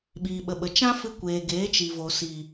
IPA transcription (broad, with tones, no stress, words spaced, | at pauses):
ɓiː˨ɓə˨ɓə˨ t͡ʃã˦fɨ˧kʷeː˨ ɡeː˨˦t͡ʃi˨vo˨ si˨